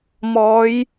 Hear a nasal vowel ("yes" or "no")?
no